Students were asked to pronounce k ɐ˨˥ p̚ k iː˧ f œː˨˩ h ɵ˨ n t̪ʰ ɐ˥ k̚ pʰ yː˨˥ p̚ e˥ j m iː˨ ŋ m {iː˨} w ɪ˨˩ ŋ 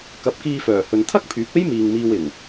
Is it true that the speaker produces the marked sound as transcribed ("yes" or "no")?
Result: no